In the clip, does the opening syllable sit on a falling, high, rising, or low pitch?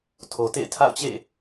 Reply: low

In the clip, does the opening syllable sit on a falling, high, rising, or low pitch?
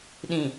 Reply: low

